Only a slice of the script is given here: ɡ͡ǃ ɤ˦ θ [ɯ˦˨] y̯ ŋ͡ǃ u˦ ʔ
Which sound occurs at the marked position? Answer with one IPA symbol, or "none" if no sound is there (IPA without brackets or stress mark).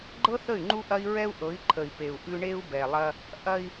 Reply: ə˦˨